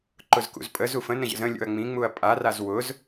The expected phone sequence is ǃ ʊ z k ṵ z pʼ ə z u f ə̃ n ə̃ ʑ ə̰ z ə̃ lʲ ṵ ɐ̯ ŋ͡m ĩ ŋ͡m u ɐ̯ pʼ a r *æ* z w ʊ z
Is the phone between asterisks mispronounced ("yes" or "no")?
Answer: yes